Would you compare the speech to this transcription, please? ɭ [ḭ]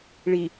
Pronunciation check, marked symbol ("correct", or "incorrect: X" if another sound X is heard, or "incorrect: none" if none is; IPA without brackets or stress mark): incorrect: i